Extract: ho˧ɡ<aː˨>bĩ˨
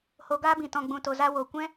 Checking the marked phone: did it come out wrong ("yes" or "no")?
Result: yes